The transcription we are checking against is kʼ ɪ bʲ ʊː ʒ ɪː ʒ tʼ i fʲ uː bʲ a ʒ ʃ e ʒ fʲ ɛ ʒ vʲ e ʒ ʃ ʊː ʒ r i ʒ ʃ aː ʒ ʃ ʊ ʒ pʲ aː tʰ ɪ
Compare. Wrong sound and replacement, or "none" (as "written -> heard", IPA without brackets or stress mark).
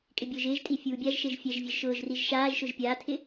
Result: none